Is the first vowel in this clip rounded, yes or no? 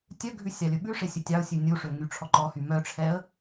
yes